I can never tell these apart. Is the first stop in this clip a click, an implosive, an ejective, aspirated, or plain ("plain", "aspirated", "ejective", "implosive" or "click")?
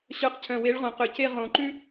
plain